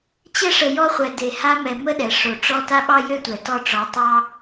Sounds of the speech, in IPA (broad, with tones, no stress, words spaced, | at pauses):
t͡ɕə˧ʂə˨ jɔ˧χʷɛ˨ de˨ ha˧mɛ˨ mə˦ɗɛ˨ ʂo˨ʈ͡ʂɔ˧ ta˦ɓɑ˦jø˦ tʷɛ˨tɔ˧ʈ͡ʂɔ˨˦tˤɑ˦